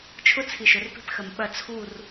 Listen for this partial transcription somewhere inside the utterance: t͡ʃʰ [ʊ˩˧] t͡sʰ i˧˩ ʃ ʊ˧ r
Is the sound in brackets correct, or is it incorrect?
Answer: incorrect